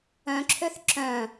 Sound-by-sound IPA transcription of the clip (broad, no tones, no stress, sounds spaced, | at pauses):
œ̃ ǁʰ ø θ ǁ œ̃